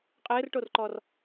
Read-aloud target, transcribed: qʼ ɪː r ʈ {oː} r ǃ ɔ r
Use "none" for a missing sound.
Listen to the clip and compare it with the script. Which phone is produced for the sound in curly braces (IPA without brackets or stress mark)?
o